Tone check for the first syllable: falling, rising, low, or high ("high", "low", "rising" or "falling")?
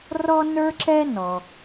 high